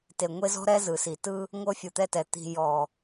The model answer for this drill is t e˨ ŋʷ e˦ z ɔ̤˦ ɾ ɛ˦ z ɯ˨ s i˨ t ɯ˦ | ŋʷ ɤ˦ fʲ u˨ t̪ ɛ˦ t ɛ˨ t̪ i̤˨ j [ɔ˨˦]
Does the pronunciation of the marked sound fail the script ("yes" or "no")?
yes